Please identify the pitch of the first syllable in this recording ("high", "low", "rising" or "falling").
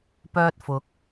high